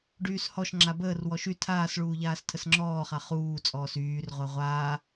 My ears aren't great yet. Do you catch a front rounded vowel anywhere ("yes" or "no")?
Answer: yes